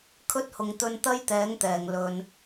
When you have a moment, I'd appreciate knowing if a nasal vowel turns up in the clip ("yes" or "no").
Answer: no